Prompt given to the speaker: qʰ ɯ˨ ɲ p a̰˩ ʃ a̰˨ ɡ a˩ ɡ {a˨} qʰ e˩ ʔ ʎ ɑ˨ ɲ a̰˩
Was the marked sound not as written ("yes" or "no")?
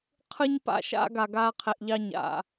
yes